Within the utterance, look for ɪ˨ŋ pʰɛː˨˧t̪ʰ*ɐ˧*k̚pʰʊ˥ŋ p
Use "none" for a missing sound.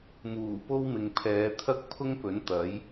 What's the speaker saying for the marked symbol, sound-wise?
ɐ˥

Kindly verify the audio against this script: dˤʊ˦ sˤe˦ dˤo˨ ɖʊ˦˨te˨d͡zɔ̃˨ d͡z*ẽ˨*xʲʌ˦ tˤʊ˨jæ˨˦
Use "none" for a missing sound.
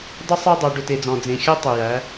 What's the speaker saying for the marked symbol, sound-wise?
ẽ˨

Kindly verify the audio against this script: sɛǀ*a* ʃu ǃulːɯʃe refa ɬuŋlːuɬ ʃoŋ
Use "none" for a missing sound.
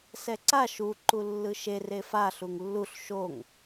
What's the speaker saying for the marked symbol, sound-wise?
a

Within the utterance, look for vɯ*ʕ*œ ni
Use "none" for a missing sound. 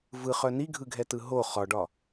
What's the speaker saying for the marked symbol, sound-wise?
χ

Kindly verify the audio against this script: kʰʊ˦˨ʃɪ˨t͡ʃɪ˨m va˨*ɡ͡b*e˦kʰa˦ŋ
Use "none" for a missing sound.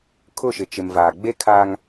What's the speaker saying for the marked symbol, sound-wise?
ɡ͡b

